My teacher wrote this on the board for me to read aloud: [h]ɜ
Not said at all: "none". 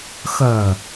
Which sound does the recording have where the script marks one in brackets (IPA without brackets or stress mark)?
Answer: x